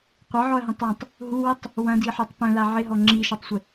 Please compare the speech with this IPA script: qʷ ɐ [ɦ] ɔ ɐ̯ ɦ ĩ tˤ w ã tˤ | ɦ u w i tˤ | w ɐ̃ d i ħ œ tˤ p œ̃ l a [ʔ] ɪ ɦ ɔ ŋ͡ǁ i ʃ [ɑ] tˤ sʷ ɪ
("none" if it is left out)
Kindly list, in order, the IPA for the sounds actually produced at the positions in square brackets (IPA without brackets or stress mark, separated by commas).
ʕ, ʕ, ɐ